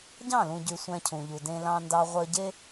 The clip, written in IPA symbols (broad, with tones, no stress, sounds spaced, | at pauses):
ɟ ɑ̃˦˨ l ũ˨ ɟ y˨ sʷ æ̃˧ cʰ ũ˨ ʎ u˨ d ẽ˧ l ɑ̃˧ n d ɑ˧ ʁʷ œ˧ ɟ e˦